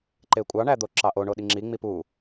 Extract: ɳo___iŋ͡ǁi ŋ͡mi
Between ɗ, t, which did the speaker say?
ɗ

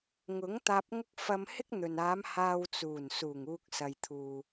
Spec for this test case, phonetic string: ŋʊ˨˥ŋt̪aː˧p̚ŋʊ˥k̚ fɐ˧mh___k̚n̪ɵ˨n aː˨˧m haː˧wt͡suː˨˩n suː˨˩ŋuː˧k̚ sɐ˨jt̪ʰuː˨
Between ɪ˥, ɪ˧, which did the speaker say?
ɪ˥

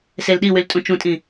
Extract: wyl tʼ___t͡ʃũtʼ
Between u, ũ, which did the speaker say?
ũ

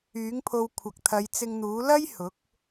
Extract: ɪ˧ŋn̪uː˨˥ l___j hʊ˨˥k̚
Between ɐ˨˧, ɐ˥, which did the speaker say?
ɐ˥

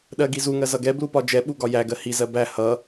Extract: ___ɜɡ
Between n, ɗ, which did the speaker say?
ɗ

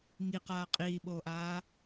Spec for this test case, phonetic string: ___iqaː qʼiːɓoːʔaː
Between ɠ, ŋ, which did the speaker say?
ŋ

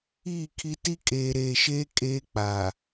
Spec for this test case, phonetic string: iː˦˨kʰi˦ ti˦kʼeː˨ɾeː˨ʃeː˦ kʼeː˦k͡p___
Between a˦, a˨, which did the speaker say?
a˨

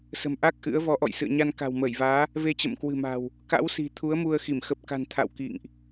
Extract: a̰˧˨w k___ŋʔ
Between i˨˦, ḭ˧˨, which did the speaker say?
ḭ˧˨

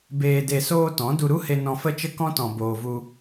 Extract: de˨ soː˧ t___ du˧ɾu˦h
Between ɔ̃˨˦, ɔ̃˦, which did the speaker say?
ɔ̃˨˦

